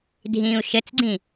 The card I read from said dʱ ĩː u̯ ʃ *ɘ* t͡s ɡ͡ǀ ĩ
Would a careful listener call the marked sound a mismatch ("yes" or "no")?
no